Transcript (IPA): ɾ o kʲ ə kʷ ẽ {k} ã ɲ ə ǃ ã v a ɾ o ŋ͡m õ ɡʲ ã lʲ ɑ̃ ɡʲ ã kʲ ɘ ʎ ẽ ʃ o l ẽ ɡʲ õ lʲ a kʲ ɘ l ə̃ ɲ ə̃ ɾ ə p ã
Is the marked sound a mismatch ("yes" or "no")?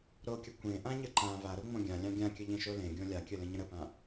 yes